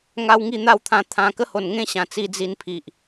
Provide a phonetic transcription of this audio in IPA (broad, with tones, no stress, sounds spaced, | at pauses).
ŋ a˦ w ŋ i˥˧ n̪ a˥˧ w t̪ʰ ã˧ t̪ʰ ã˧ k ə˥˧ h o˨˩ n ŋ ẽ˥˧ ɕ ã˨˩ t͡s i˧ d͡z i˧ n pʰ i˨ ʔ